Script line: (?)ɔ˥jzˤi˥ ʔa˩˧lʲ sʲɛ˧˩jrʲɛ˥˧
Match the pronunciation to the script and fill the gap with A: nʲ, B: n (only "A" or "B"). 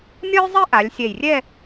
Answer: A